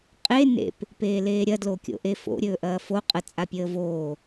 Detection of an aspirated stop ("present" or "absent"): absent